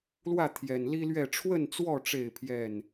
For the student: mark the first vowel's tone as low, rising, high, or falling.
falling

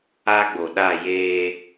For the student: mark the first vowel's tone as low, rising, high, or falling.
high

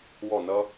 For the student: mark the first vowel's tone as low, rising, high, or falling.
falling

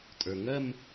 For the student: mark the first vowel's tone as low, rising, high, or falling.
low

